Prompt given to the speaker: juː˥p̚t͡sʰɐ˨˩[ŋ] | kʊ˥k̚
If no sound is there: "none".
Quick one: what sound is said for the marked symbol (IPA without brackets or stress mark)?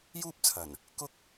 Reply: n